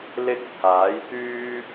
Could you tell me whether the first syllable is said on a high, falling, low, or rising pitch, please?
high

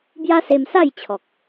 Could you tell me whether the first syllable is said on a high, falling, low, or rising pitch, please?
high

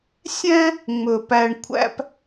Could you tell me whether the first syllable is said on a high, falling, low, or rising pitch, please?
high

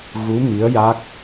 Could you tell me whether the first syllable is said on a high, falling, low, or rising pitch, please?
rising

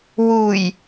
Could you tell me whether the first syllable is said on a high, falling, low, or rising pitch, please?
low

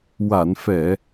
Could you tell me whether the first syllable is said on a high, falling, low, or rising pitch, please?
low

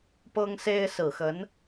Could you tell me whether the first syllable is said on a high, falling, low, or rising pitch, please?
high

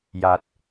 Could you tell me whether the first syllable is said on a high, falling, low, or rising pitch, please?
low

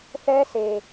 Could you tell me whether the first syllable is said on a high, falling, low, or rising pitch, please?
high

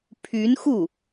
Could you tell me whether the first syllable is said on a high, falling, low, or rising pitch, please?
rising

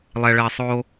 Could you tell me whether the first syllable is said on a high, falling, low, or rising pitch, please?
low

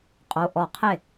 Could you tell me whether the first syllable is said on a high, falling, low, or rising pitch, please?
rising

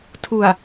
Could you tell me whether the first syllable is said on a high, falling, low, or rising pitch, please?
low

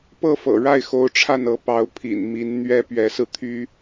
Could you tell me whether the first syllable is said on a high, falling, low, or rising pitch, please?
falling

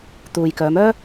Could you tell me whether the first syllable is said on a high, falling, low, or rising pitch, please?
low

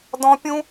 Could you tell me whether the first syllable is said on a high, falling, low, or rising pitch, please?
high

